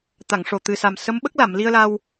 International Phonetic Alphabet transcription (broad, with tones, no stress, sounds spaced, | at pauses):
t̪ a˨˩˨ ŋ ʂ o˨˩ t̪ ɨ˨˩ s a˨˩ m s ə˧˥ m ɓ ə˦˥ k̚ l a˨˩˨ m l i˧ ə̯ l a˧ w